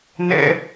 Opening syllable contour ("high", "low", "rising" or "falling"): high